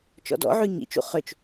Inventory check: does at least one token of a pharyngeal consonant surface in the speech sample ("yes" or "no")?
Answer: yes